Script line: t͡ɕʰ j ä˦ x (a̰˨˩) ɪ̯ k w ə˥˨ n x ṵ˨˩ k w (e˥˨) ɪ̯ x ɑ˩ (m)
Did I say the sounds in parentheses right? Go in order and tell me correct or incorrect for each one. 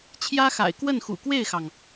correct, correct, incorrect

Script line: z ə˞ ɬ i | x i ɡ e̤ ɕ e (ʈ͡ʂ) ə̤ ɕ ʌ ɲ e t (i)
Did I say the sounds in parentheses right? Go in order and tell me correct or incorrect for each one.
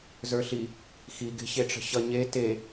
correct, incorrect

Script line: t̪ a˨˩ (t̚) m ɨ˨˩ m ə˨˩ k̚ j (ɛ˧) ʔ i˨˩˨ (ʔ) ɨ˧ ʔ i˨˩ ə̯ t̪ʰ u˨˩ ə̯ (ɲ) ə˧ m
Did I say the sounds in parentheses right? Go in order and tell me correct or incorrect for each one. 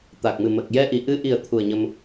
incorrect, correct, correct, correct

